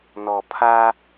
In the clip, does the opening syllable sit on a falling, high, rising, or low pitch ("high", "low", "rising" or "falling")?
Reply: low